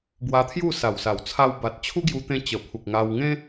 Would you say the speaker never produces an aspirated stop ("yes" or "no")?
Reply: no